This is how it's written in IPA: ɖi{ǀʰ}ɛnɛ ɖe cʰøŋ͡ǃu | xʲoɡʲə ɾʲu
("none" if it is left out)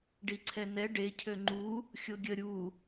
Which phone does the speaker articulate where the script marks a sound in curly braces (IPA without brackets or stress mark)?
ǀʰ